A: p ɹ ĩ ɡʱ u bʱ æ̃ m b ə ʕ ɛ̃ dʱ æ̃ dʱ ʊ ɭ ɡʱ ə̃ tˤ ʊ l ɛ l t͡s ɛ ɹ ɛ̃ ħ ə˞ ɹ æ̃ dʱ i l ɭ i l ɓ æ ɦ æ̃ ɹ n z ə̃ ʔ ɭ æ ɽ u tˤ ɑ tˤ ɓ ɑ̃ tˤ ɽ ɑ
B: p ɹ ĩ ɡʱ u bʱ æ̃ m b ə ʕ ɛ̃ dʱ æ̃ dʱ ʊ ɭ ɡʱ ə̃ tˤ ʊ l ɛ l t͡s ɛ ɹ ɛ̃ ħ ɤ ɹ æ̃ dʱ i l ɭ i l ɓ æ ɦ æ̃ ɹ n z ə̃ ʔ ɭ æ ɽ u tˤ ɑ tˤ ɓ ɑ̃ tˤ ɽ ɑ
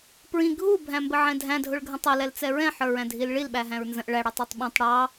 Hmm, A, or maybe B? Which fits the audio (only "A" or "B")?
A